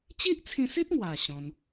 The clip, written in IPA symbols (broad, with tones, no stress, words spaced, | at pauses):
t͡ɕi˦ʔt͡sʰĩ˧si˦t̚ŋwa˨˩ ɕɔ̃˧n